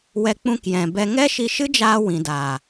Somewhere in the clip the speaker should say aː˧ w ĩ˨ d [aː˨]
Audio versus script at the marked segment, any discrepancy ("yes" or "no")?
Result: no